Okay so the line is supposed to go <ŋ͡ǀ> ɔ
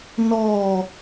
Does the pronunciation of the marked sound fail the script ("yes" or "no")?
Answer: yes